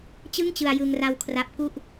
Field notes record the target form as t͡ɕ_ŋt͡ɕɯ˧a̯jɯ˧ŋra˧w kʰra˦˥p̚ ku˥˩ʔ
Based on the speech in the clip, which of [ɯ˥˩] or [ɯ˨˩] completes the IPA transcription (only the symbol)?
ɯ˥˩